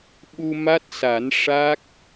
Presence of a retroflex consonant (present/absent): present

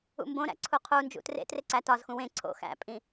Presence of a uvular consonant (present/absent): present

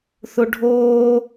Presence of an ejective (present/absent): absent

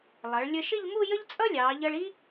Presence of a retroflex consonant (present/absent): present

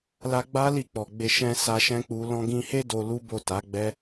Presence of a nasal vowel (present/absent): present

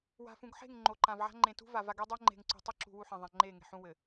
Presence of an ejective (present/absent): absent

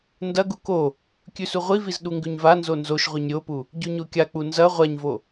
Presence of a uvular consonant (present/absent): present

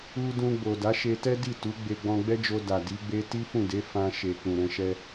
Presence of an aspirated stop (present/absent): absent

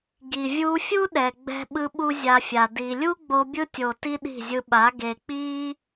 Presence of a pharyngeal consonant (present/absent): absent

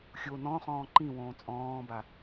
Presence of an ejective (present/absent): present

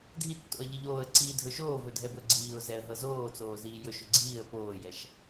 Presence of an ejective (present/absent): absent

